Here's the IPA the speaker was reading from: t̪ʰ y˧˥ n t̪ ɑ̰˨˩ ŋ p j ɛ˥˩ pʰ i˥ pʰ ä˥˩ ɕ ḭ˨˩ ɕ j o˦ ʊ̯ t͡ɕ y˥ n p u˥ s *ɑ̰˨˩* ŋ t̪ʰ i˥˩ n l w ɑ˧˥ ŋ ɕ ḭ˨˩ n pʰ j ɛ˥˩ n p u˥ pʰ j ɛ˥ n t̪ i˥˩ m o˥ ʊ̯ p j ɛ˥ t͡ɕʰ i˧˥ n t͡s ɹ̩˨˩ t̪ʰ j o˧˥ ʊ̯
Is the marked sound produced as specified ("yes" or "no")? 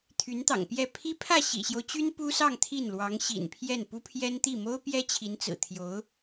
no